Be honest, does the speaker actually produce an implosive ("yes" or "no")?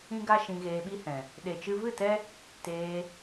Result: yes